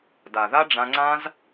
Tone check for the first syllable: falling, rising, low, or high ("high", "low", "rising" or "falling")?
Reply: low